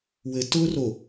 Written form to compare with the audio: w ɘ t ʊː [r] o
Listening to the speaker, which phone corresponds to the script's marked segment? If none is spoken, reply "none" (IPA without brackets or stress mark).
r